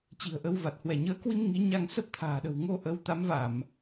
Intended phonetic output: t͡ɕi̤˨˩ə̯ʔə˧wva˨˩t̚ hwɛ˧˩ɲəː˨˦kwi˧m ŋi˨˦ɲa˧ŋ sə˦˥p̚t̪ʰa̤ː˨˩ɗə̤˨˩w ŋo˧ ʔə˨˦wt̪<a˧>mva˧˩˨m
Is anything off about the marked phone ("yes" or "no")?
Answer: yes